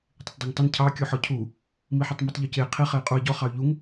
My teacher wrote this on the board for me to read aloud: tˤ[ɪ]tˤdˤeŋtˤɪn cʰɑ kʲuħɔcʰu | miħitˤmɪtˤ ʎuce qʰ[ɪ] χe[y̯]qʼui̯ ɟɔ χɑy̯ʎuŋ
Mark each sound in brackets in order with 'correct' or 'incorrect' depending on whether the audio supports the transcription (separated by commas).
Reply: correct, incorrect, incorrect